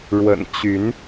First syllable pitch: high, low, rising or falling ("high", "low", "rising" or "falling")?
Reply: low